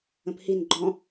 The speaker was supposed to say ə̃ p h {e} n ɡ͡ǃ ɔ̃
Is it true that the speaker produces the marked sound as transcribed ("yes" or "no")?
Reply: no